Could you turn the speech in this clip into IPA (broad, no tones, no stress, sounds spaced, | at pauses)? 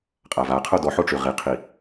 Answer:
qʼ a v a qʰ o d ɔ ħ o ʈ͡ʂ y ʁ i qʰ i